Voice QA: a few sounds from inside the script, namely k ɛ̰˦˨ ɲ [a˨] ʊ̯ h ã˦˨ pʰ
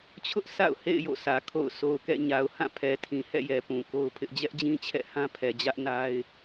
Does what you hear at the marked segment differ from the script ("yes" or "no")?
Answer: no